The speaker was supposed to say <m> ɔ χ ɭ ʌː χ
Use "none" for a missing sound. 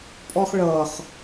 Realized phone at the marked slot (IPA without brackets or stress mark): pʼ